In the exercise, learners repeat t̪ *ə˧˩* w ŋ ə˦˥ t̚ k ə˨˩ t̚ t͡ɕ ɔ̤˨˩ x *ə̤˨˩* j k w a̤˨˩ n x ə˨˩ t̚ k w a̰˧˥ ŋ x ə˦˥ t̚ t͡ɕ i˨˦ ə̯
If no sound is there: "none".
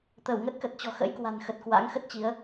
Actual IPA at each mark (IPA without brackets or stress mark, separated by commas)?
ə˧˩, ə̰˧˥